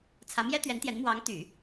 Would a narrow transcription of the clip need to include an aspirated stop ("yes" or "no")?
yes